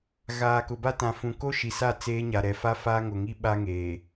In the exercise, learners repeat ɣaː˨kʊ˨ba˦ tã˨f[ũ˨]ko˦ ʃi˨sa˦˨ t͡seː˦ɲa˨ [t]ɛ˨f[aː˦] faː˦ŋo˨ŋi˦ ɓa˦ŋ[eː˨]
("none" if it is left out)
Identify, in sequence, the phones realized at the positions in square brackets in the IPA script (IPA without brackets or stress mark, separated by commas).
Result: ũ˨, ɾ, a˦, eː˨